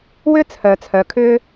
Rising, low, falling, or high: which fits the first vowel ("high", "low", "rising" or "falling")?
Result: high